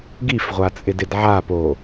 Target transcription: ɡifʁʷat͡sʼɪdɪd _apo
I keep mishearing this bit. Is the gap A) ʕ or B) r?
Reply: A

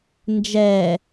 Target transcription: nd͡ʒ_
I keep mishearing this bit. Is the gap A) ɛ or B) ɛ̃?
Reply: A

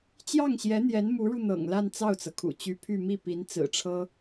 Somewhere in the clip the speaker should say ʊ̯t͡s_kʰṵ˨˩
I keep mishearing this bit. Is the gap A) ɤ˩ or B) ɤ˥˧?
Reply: A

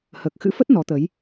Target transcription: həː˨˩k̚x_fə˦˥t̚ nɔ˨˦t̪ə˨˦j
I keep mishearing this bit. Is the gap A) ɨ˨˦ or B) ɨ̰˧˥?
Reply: B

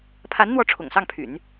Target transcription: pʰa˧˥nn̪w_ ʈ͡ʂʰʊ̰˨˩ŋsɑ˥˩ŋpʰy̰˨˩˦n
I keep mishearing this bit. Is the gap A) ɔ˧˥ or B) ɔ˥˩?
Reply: A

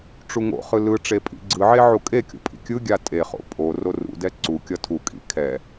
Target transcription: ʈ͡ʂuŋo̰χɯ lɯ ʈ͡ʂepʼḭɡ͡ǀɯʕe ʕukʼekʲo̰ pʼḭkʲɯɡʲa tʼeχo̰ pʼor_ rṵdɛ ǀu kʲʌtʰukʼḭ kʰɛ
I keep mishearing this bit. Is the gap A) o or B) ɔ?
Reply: A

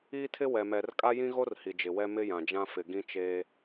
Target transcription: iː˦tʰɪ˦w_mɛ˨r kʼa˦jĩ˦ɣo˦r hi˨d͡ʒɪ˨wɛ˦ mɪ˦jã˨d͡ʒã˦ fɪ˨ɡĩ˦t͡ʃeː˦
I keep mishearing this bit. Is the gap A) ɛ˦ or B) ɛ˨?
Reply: B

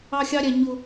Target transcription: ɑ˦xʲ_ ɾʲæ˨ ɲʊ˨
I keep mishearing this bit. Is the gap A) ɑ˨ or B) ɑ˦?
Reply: B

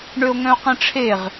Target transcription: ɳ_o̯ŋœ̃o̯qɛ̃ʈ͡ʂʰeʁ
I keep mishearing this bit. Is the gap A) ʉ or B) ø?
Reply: B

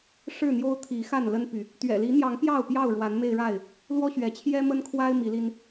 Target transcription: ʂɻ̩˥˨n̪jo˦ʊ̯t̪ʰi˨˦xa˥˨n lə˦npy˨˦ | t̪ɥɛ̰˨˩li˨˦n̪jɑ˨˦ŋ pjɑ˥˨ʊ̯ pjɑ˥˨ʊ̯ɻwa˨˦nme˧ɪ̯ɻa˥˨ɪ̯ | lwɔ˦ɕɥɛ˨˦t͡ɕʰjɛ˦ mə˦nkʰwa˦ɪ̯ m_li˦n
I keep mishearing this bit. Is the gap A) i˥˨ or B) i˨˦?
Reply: B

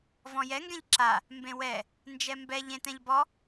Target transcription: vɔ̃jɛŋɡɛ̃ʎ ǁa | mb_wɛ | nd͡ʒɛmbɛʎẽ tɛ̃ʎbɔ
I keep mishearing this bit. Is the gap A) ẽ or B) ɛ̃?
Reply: A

